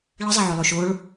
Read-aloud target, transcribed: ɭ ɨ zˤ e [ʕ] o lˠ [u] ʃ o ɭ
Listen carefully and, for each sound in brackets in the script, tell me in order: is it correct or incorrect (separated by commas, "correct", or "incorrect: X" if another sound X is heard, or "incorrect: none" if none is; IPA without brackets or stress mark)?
correct, correct